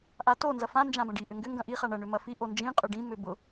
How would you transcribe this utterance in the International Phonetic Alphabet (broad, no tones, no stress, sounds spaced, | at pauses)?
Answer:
ʔ a t o n z ɐ f ã n d͡ʒ ã b ɐ̃ ɖ i ʔ ʏ ŋ ɡ ʏ ŋ ɡ ɐ̃ ʔ i χ a ɳ ɐ ɳ ʏ m ɐ f i ʔ o n d͡ʒ ĩ qʼ ʏ ɖ ĩ m ʏ b ʊ